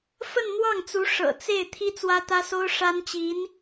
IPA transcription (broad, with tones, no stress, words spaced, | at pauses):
fə˥˧nn̪wɑ˥˩ŋt͡su˧˥ ʂɤ̰˨˩t͡se˥˩ɪ̯ t̪ʰi˥t͡swä˥t̪ä˥so˥ʊ̯ ʂa˥nt͡ɕi˧˥n